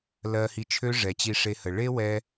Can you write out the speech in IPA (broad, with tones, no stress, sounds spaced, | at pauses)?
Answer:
l ɜ˧ h i˧ t͡ʃʰ ø˦ ʐ ɛ˨ t͡ɕ i˧ ʂ e˧ h ə˨ ɭ e˦ w ɛ˧